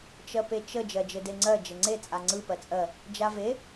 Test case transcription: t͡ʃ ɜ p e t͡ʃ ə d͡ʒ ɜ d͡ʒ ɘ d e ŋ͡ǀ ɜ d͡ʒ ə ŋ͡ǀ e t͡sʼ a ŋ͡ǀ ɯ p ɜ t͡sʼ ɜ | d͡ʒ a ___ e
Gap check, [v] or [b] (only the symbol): v